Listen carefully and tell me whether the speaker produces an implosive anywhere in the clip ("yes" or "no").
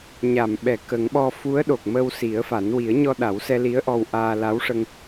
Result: yes